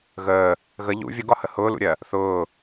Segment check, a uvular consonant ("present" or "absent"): absent